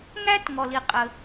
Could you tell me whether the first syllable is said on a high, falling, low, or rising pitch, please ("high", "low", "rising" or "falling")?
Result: high